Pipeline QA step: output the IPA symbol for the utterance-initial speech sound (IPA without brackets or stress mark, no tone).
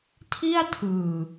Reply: tʰ